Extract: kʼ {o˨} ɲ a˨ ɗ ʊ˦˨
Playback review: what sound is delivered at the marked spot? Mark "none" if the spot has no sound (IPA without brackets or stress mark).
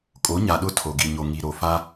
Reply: o˨˦